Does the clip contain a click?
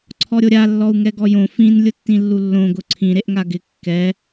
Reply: yes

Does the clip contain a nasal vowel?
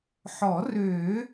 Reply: no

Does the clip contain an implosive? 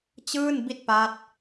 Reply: no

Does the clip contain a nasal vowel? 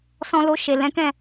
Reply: yes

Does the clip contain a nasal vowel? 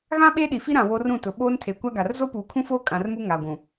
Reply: yes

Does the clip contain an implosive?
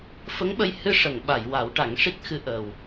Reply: yes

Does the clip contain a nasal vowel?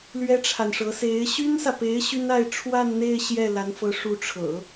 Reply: no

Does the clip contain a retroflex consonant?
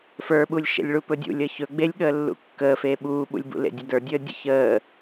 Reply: yes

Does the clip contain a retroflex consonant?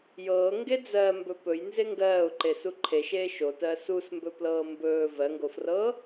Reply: no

